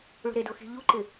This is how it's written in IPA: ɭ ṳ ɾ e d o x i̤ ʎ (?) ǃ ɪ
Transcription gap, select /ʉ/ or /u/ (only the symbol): u